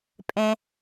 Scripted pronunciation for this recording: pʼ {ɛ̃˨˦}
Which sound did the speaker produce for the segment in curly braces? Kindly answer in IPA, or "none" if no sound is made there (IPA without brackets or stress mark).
ɛ̃˦